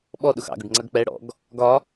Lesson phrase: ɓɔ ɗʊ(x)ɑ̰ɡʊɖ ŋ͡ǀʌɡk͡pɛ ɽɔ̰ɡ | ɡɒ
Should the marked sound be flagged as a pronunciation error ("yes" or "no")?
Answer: no